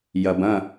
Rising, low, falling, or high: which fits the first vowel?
low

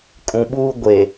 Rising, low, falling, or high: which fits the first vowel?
low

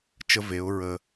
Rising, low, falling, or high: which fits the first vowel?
high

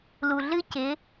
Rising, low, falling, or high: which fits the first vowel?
low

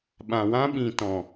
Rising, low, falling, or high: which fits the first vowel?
low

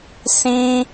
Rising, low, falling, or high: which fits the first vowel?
high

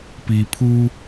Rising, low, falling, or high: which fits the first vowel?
low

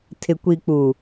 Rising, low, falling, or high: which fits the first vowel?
low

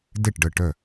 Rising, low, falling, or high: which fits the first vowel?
falling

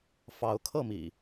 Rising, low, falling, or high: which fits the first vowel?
rising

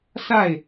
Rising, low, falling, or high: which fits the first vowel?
falling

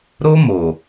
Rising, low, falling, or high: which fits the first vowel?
high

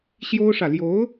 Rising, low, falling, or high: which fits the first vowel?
high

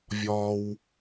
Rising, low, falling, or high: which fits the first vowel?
high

